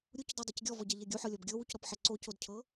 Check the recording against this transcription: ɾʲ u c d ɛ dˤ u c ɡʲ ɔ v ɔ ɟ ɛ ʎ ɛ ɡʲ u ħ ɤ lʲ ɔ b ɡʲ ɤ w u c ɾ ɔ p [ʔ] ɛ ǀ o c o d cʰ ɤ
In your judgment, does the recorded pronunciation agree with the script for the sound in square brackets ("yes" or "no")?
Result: no